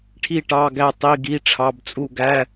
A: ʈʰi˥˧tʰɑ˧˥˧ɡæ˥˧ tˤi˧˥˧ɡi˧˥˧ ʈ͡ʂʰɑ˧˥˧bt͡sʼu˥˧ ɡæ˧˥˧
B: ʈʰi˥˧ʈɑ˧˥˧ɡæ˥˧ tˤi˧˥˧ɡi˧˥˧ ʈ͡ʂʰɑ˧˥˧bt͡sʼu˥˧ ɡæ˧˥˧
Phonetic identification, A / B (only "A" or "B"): B